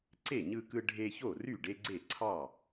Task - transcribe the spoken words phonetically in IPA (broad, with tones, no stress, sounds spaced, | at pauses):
ǀ e˥˩ ɲ ɯ˦ k ɯ˦ ɖʱ e˦ ç o˥˩ r y˥˩ ɖ e˦ ɡ͡ǀ e˥˩ ǀʰ ɑ˥˩